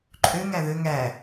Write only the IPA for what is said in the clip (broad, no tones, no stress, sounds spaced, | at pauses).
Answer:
ǃʼ ø ŋ æ ð ø ŋ æ